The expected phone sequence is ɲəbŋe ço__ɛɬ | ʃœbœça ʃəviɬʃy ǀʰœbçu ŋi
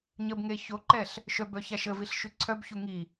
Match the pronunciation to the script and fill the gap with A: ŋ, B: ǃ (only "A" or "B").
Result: B